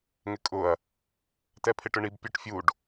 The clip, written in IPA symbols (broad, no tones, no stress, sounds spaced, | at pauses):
ŋ ɪ kʼ ʊ ɐ̯ | t ɛ pʰ ɪ ʈ ʊ ɳ i b pʲ ɔ ʈ fʲ u ɖ